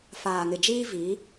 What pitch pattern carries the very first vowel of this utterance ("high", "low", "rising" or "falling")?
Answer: low